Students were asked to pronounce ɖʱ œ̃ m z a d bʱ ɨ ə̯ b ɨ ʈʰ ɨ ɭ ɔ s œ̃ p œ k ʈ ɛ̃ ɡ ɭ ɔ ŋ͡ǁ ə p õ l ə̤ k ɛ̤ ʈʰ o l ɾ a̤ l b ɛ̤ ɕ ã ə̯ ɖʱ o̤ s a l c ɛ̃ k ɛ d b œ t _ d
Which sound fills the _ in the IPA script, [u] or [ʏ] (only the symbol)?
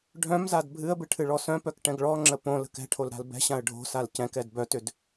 ʏ